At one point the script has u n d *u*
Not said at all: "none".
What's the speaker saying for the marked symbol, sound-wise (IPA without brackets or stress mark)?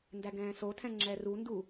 u